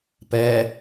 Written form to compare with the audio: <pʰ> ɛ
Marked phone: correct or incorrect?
incorrect